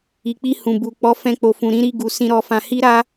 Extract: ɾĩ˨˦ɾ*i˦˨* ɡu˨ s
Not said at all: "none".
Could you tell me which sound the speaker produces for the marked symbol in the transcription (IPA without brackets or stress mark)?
i˦˨